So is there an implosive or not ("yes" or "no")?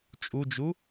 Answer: no